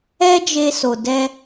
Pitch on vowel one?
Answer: high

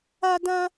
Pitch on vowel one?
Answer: high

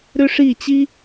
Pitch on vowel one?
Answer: high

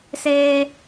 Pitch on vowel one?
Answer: high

